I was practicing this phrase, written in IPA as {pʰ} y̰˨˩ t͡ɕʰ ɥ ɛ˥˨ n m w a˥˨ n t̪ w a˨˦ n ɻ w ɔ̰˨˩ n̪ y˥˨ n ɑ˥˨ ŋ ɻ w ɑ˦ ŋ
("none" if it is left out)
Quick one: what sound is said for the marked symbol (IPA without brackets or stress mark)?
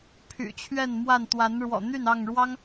pʰ